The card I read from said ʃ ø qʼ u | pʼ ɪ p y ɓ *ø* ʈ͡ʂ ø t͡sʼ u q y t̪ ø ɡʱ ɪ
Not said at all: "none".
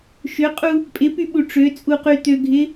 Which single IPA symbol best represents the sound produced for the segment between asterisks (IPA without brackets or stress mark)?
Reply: u